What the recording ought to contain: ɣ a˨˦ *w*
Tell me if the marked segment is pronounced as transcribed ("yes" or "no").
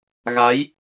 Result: no